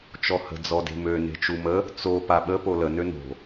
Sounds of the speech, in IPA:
t͡ʃ ɔ h ə̤ d͡z ɔ d e̤ m ø n e̤ t͡ʃ u m ə | t͡s o p a ɓ ə p o l ə n ø n o̤

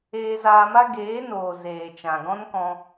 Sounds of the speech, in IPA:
eː˧ z aː˧ m a˦ ɡ eː˨˦ n oː˨ z eː˨ t͡ʃ ã˨ ɡ ɔ̃˦ n k ɔ̃˧

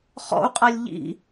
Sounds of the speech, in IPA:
χ ɔ̰ u̯ qʼ a lʲ ʎ ḭ

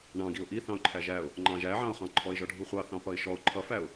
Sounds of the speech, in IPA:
ɳ ɑ̃ ɡ i ʊ̯ ʔ i θ ɑ̃ ʊ̯ ǃʰ æ ʒ æ ʊ̯ | ŋ͡ǃ ɑ̃ ʒ æ ʕ ɑ̃ ʊ̯ χ ɑ̃ ǃʰ ɔ ɪ̯ ʒ ɔ ɖʱ u χʷ ɑ θ ɑ̃ p ʌ ɪ̯ ʃ ɔ ʊ̯ ǃʰ ʌ f æ ʊ̯

